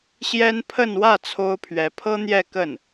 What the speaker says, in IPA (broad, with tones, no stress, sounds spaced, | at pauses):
ɕ j ɛ˥ n pʰ ə˥˧ n w ä˥˩ t͡sʰ o˥ ʊ̯ pʰ ɥ ɛ˧˥ pʰ ɤ˥ n̪ j ɛ˥˧ k ə˥˩ n